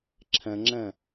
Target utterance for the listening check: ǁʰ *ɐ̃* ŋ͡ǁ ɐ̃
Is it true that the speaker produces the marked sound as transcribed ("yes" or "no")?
yes